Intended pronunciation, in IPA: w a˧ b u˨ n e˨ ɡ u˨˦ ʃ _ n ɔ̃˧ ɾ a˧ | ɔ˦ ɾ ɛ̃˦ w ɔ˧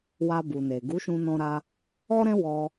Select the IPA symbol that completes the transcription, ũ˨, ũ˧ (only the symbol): ũ˧